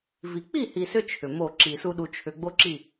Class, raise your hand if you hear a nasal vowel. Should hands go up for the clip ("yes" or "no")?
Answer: no